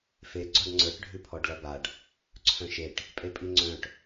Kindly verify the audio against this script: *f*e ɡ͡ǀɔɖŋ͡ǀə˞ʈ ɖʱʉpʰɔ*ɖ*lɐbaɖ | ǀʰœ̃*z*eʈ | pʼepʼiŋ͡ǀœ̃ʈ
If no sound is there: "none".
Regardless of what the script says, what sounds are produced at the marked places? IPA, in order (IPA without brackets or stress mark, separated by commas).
f, ɖ, ʃ